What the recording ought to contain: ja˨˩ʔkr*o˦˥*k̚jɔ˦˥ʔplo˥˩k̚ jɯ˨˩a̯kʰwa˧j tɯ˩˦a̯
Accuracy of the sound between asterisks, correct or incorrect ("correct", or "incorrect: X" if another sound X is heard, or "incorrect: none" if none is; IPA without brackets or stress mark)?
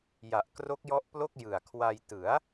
correct